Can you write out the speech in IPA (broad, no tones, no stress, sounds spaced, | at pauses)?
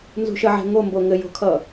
n z ṳ ʃ ə ʕ ɛ̤ ŋ o m b o ŋ ɘ j o̤ kʰ ʌ